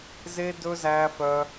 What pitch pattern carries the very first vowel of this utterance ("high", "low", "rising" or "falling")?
high